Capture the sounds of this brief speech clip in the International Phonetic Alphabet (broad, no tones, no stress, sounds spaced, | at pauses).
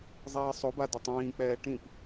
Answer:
zˤ iː sˤ o b a d ɪ tˤ ĩː k͡p ɛː ʈ ĩ p